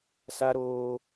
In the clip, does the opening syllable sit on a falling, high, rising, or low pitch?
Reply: high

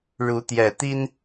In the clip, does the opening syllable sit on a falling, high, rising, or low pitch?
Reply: rising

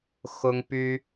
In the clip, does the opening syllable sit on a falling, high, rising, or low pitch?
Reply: high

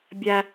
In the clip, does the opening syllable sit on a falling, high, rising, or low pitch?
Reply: high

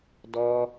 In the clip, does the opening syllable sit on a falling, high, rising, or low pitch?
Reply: high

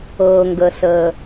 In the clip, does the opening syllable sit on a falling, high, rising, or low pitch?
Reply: low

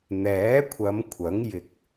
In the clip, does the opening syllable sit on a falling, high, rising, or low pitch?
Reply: rising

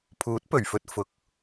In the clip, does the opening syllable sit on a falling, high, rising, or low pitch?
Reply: rising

